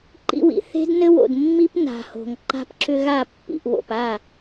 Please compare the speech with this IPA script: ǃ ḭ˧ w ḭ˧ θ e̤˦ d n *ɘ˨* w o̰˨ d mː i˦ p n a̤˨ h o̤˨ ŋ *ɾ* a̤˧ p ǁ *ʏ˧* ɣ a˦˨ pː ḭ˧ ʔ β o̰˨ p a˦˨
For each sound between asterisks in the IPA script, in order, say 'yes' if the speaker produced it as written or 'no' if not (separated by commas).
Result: no, no, yes